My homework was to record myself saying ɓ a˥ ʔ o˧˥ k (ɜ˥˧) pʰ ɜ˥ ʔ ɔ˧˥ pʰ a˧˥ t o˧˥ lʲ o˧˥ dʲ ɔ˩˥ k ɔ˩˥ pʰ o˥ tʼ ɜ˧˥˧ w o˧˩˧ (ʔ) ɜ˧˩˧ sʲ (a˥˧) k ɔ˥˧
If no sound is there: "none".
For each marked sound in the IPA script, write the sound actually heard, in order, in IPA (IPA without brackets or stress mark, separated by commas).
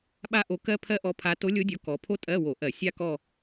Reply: ɜ˥, ʔ, a˥